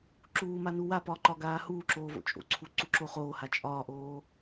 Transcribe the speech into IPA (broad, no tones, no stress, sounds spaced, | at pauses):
ǁ uː m a n u w a p ɒː ǃ ɒ ɡ aː h uː ǁ oː v o̰ t͡ʃʼ o̰ ǀʰ u ǀ u ǁ o χ oː h a t͡ʃʼ ɒː ʔ oː